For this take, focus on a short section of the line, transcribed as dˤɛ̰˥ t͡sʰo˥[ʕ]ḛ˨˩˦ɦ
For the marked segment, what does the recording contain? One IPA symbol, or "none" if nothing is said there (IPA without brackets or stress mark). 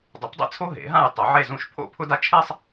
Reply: ɦ